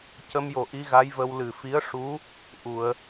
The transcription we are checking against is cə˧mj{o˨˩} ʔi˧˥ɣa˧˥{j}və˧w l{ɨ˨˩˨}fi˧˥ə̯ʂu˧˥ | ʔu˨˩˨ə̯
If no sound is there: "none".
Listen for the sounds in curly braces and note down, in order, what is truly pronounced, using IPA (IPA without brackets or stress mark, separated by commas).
o˨˩, j, ɨ˨˩